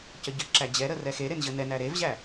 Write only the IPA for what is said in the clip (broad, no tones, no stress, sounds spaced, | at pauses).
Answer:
c ə ɟ ə ǁ æ d͡ʑ ɛ ɾ ə r ɛ x e ɾ e n ʑ ə n ɛ n æ ɾ e v ʑ æ